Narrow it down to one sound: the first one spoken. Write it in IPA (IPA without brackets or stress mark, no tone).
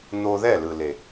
n̪